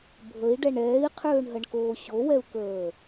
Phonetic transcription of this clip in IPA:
bʱəi̯ɖɛɳ ɛːi̯qʰøːɳɦəɳkoː ɕowɛu̯kəː

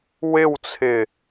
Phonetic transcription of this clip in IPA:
wɪwt͡sʰɪ

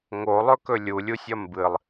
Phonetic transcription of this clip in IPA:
ŋolˠɵkɵ lʲulʲusʲɐ mbɨlˠ

